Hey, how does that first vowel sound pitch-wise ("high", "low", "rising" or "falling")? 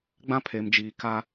high